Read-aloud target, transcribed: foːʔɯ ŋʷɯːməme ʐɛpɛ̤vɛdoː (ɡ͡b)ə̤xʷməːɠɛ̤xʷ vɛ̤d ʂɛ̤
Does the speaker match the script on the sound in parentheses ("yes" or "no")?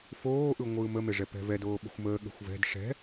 no